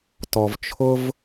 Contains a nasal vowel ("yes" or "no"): no